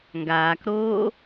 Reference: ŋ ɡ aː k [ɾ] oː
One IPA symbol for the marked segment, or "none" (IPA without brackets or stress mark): ɾ